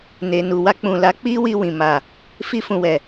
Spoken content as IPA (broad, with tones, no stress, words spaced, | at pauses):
ne˨nu˨wa˧ k͡pũ˨la˨˦k͡pi˦ wi˧wĩ˨ ma˨ | fi˧fũ˨wɛ˨